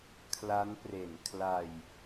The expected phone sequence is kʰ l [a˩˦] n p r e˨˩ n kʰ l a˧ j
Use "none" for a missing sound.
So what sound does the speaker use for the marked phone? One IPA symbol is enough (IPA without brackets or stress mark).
a˦˥